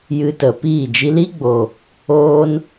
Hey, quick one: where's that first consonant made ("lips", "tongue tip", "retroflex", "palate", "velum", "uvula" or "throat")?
palate